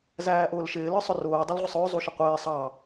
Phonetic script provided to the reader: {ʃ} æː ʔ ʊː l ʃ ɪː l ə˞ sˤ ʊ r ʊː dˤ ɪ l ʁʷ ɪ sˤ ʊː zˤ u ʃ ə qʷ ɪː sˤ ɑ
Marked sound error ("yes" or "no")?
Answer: yes